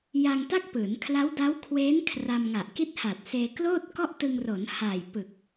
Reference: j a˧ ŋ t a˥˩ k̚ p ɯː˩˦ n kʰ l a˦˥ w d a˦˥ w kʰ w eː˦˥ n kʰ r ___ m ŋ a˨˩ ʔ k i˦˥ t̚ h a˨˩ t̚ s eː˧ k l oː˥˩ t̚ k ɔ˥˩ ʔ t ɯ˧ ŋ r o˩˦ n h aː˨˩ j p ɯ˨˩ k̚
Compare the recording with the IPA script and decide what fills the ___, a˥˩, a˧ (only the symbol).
a˧